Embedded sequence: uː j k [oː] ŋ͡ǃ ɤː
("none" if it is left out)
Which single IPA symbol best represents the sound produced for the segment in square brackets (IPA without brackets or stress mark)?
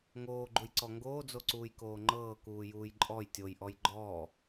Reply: oː